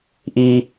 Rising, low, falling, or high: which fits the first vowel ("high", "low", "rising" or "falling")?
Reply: high